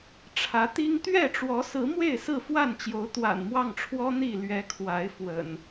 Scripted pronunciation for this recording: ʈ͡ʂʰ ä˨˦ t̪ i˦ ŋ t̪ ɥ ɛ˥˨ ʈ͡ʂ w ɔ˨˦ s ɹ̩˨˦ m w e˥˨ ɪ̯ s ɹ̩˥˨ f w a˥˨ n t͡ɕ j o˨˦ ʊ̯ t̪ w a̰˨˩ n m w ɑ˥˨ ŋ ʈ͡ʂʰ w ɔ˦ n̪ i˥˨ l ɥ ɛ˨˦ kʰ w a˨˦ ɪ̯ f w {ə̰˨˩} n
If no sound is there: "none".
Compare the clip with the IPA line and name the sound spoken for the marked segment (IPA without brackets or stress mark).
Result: ə̰˨˩